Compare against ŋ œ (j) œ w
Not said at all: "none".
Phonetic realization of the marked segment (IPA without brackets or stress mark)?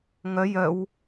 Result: j